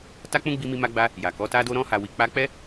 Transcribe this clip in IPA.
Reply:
ta˦k͡pũ˦ ɡ͡bi˦ mi˦ma˦ɡ͡ba˦ | ja˨kɔ˨˦ta˦do˦ ɾɔ̃˦ha˧wi˧k͡pa˦ k͡pɛ˦

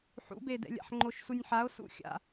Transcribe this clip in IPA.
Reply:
ħṵbedɛ̰lʲa̰ħ ŋ͡ǃoʃsunʲħao̯ sṵxʲa̰

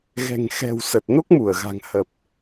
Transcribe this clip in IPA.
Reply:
ɣɛ̤˨˩ŋxɛ̤˨˩w sə˨˩t̚no˦˥k̚mu˧˩ə̯ɣa̤˨˩ŋ hə˨˩p̚

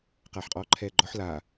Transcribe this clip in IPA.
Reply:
qaːħqʼɔːǃʰɛːɡ͡ǃɔħ la

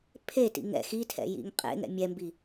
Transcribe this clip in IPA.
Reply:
pʰetḭ ŋɛ̰x itʰɛ̰ jḭŋqʼḛŋɛ̰ mʲɛmbi

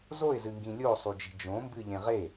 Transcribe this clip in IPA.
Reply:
zoɪ̯zɨŋɡĩ lʲosˤud͡ʒi̤ d͡ʒõmbɨʎẽ ʁe

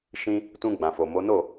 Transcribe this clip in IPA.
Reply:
ʃĩ˧ | tũ˧ɡ͡bã˨fo˨mo˨˦ no˦˨

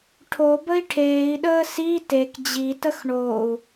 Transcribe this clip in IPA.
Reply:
ʈʰobəi̯ ʈʰeːi̯ɗəː si tek d͡ʑitəx ɳou̯

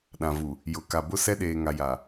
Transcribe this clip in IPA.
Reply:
ɗã˨vu˨ | jʊ˨ ka˨bʊ˦ sɛ˦ɗeː˨ŋa˨ja˨

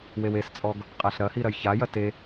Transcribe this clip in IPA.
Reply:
wewest͡sʼɔɡ | qʼaɬɾɐhi ɾɐjçajɐ te

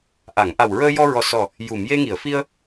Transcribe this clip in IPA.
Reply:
ʔa˨˩˨ŋʔa˨˩wɹəː˧jɔ˧ ɹɔ˨˩sɔ˨˩ | ju˨˩˨mje˧ŋi˨˩˨ə̯fi˧ə̯

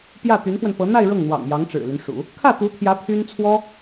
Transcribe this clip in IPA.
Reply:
pjä˥˩t̪y˧˥nfwə˧npɤ˧˥ n̪a˥˧ɪ̯ ɻɤ˥˩ŋn̪wɑ̰˨˩ŋ jɑ˧˥ŋʈ͡ʂɻ̩˨˩ly˦n ʂṵ˨˩˦ | kʰä˥˩t̪u˧˥t̪ʰjä˧˥ pʰy˥n t͡sʰwɔ˥

